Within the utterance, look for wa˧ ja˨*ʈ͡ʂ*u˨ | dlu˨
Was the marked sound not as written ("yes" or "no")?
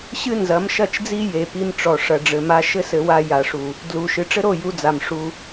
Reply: yes